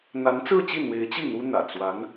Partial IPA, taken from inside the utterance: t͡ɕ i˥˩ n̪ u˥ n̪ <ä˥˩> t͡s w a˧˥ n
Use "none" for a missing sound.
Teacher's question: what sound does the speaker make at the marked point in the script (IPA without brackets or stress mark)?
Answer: ä̰˨˩